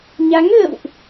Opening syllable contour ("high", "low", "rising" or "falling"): rising